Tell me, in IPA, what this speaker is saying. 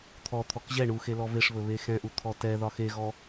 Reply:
t̪ʰ ɔ t̪ʰ ɔ k ʑ ɛ ɳ u x e l ɔ v e ʂ β ɵ β e x ɛ̃ ʔ u t̪ʰ ɔ t ɛ ð ɒ x e ɣ ɔ

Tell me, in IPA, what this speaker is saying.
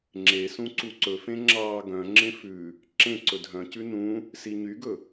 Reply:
ŋ͡ǁ e s ũ ǀ u ǀ ɵ f ẽ ŋ͡ǁ ɑː ɡ œ̃ ŋ͡ǁ ẽ f ʉ | ǁ ẽ ǀ ɵ dʱ œ̃ c ʉ n ũ | s i ɲ y ɡ ɵ

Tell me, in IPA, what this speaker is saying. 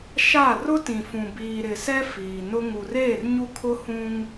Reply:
ʃ a˦˨ r ʊ˦ t ĩ˨ f ũ˨ b iː˨ ɾ ɪ˨ s ɛ˦ f iː˨ n ʊ˦ ŋ u˨ r eː˦˨ r ɲ u˦ kʰ ʊ˦ h ũ˦ ŋ

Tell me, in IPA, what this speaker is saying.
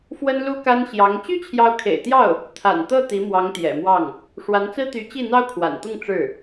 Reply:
f w ə˥ n l u˥ k a˥ n ɕ j ɑ˧˥ ŋ t͡ɕ y˥ t͡ɕʰ j ɑ˧˥ ʊ̯ kʰ ḛ˨˩ ɪ̯ t̪ j ɑ˥˩ ʊ̯ | t̪ʰ a̰˨˩ n t̪ ɤ˥˩ t̪ i˧˥ m w ɑ˧˥ ŋ t̪ j ɛ̰˨˩ m w ɑ˥˩ ŋ | ʂ w a˧˥ n t͡s ɹ̩˥ t̪ y˧˥ t͡ɕ i˥˩ n̪ ɑ˥ ʊ̯ kʰ w a̰˨˩ n t̪ ʊ˥˧ ŋ ʈ͡ʂ ɻ̩˥˩

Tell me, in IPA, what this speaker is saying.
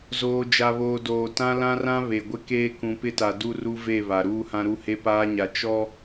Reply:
z oː˨ d͡ʒ a˨ β oː˨ d oː˨ t ã˦ l ã˦ r ã˦ β e˨ ɡʷ ɪ˦ k eː˦ k ũ˨ p ɪ˦ t a˨ d u˦ r u˦ v e˦˨ β a˨ ɾ uː˦ h ã˦ ɾ u˦ h e˦ p aː˦ ɲ a˨ t͡ʃ ɔ˦

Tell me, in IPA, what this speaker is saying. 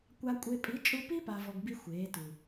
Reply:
kʷ a˧ kʷʼ e˧ pʼ i˨˦ t͡ʃʼ u˧ p i˦ p a˨ v ɔ˧ ɡ b i˦ xʷ eː˨˦ t u˨

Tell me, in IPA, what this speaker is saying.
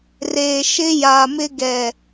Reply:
r eː˨ ʃ ɪ˦ j a˨ m ɪ˦ ɡ ɛ˨

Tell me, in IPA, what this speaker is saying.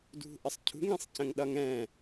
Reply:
d ṳ ʔ ə sˤ cʰ ṳ ŋ ĩ sˤ c ə̃ ŋ ɗ ʌ ŋ ɛ̃

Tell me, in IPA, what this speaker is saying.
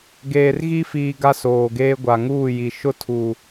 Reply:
ɡ eː˨ r ɣ i˦ f iː˨ ɡ a˦ s oː˨ ɡ eː˦ ɡʷ a˨ ŋ uː˦˨ j i˨ ʃ ʊ˦ tʰ uː˨

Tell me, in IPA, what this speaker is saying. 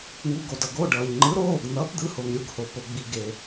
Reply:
ŋ u˩˧˩ ɡ o˩ d ʌ˩ ɡ o˩˧˩ ɖ ʌː˩ ʎ ŋ͡ǃ ɯ˩˥ ɾ oː˩˧˩ ɡ n̪ ʌː˩˥ p d̪ ɯ˩˥ h o˩ ŋ ɾʲ u˩˧˩ ɡ h o˩ p o˩ ɡ͡b i˩ ɡ e˩

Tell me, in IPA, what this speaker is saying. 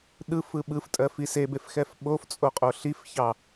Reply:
ɗ ɯ f ɯ ɓ ɯ f tʼ ɜ f i s e b e f x ɛ f ɓ o f t͡sʼ o qʼ o ɬ i f ç ɑ

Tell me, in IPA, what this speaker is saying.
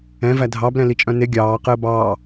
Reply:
ɛ̃ v æ dʱ ɑ b l ɛ̃ l i t͡ʃʼ œ̃ n e ɡʲ ɑː q əː b ɑː

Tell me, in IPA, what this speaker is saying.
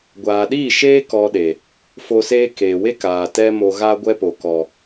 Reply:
ɡʷ aː˨ ɗ iː˦˨ ʃ eː˦ k ɔ˧ ɗ e˨ | f o˧ s eː˦ k eː˨ w e˦ k aː˨ t ɛ˦ m o˧ ɣ a˦ ɡʷ ɛ˦ p o˨ k ɔ˨

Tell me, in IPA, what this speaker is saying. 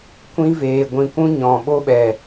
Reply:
kʷ ĩ˧ v eː˨ ɡʷ ĩ˨ kʷ ũ˦ ɲ ɔ̃˨ ɓ o˦ ɓ ɛ˨

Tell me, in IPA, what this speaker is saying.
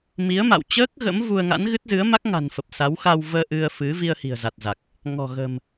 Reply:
m i˨˦ ə̯ m a̰˧˨ w t͡ɕ əː˦˥ k̚ ɣ ə̰˧˥ m v u˧ ə̯ ŋ a̰˧˥ n ɣ ɨ˦˥ t̚ z ɨ˨˦ ə̯ m a˦˥ k̚ ŋ a̤˨˩ n f ə˨˩ p̚ s a˨˦ w x a˧ w v əː˧ ʔ ɨ˧ ə̯ f ɨ˨˦ v i˧ ə̯ h i̤˨˩ ə̯ z a˨˩ t̚ z a˨˩ k̚ | ŋ ɔ̤˨˩ ɣ ə̤˨˩ m

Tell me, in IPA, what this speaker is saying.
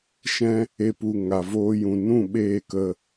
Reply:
ʃ ɛ̃˦ | e˦ p u˧ ŋ a˨ v oː˧ j ũ˨ n ũ˦˨ ɓ eː˦˨ k ə˧

